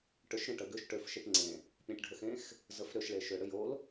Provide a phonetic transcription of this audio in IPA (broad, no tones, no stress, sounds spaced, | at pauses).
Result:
ʈ ʏ ʃ ɾ ẽ ʈ ə ɡ ʏ ʃ ʈ ø f ʃ e ʈ ŋ͡ǀ ẽ | pʲ ẽ ʈ ɖʱ ə x ẽ x | z ə f ɾ ʏ ʃ ɭ e ʃ ʏ ɽ ʏ j o l